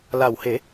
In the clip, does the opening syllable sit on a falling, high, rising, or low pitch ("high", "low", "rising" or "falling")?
low